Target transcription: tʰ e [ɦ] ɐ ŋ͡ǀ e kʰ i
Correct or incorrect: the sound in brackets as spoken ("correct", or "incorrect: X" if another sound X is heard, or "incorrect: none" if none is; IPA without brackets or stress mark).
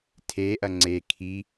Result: incorrect: ʔ